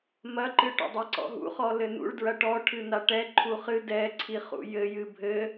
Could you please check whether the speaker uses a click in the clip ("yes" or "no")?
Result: yes